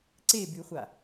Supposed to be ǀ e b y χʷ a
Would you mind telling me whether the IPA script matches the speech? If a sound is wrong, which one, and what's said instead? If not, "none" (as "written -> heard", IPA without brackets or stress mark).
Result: none